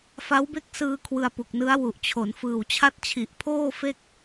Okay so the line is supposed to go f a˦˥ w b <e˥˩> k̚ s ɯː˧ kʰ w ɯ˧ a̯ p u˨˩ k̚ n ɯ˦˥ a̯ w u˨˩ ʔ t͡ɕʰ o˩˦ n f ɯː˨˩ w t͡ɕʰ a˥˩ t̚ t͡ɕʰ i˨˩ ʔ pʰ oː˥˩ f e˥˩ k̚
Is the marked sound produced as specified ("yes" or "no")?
yes